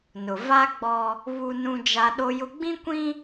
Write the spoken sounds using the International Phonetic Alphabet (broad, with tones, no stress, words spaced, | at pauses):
nʊ˨ va˦ ɡ͡bɔ˦ | βu˦nũ˦d͡ʒa˦ ɗo˦jʊ˦ ɡ͡bĩ˦ kʷĩ˦